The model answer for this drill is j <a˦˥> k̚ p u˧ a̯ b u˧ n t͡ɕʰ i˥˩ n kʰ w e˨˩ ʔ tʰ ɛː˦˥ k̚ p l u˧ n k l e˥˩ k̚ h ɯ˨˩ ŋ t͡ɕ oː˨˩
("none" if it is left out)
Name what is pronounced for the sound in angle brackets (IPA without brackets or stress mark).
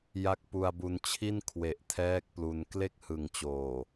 a˦˥